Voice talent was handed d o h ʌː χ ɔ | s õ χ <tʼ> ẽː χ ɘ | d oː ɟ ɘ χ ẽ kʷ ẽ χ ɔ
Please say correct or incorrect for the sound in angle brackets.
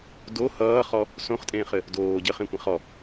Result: correct